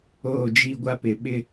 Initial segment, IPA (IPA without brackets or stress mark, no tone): oː